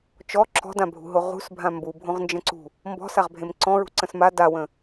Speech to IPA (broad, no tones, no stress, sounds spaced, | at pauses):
t͡ʃ ɔ ǁ ɔ̤ d ã bʱ ṳ ɦ o ʁ ṳ s bʱ ã m b u bʱ õ ʁ n d͡ʒ ə̃ ǀ ṳ | m b ɔ̤ s a ʁ bʱ ẽ m ǀ ɔ̃ ɹ ṳ ǀ ə̃ s m a d a w ə̃